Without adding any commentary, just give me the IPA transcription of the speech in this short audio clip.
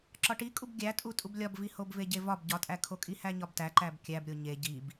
ǁɒʈikʼub ɡʲætʼutʼub lʲɒbvihobve ɟevɒb ɟɒtʼækʰo kʼihæɲɒbtæ ǃæbkʲæbɾʲo ɲe ɟib

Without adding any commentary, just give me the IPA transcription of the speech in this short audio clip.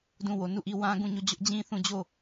dũ˦˨ wo˨nu˦˨ʔi˦˨ wã˦ɡũ˦˨ɲo˦˨ d͡ʑʊ˦ʔd͡ʑĩ˦θũ˦˨ d͡ʑo˦˨

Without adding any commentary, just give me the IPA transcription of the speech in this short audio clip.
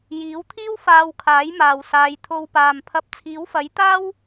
jiː˨˥wt̪ʰiː˥w faː˧wkʰaː˨˥jmaː˨w saː˨˧jt̪ʰo˧wpaː˨mpʰɐ˧p̚ t͡sʰiː˨˥wfɐ˨˥jt̪aː˥w

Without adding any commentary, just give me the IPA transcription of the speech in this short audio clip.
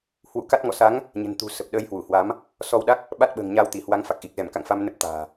hwṵ˧˨ka˦˥t̚ ŋɔ̰˧˨sa˨˦ŋ | ɲə̤˨˩nt̪ṳ˨˩ sə˨˩p̚ ɗəː˧jhwu˧˩hwa˨˦m | sɔ˧wɗa˦˥k̚ | ɓa˦˥t̚ɓə̤ː˨˩ŋ ɲaː˧wt̪i˧˩hwa˨˦ŋfa˨˩k̚ ʔi˨˩k̚zɛ˧˩mka̰˧˨ŋ fa˧mnə˦˥p̚ t̪a̤ː˨˩

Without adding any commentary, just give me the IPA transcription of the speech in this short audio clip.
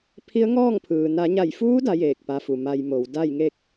pʰi˧˥ə̯ŋɔː˥˨ŋpʰɯː˩ na˩˧ɲa˧˩jfuː˧˥ da˧˥jeː˧˩k̚ pa˧fu˩ ma˧jmo˩˧w da˥˨jŋe˥˨k̚

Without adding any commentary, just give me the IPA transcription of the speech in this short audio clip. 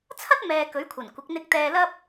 t͡sʰɐ˥t̚ mɛː˨ kɵ˨˥ɥkʷʰɐ˨˩nkʷɪ˨˥k̚ n̪ɪ˧k̚t̪ɛː˧lɐ˥p̚

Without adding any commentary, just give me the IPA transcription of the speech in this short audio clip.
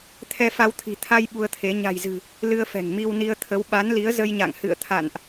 t̪ʰɛ˧fa˧wt̪ʰi̤˨˩ t̪ʰa˧j ɓu˧ə̯t̪ʰe˨˦ ɲa̤˨˩jzɨ̤˨˩ | lɨ˧ə̯fɛ̤˨˩ŋ mi˧wni˧ə̯t̪ʰə˨˦w ɓa˨˦nli˨˦ə̯ zə˧jɲa̰˧˨ŋhɨ̰˧˨ə̯t̪ʰa̰˧˨nʔ

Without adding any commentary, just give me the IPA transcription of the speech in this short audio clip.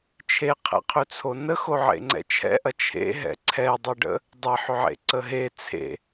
t͡ʃʰeqʰɛ̰qʰʏt͡sʰo nəxoʕḛŋ͡ǀɛ̰ t͡ʃʰɛ̰ʔɐ t͡ʃʰḛɦɛ̰ ǀʰɛdˤɐɖə̰ | dˤeħʏʕḛǀə ɦe t͡sʰḛ

